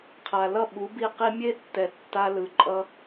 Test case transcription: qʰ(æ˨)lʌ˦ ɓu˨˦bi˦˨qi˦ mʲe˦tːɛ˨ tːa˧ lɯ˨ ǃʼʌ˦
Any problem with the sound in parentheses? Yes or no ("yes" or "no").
yes